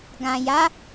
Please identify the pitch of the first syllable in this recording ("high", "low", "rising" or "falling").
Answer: low